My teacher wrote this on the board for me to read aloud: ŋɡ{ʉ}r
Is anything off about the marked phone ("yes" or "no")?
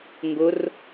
yes